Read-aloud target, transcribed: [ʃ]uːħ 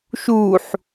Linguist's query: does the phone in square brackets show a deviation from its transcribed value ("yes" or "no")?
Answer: no